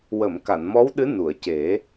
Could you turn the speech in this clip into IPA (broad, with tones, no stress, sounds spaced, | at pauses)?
w ə˨˩˨ m k a˨˩˨ n m ɔ˧˥ w ɗ ɨ˧˥ n u˨˩˨ ə̯ c e˨˩˦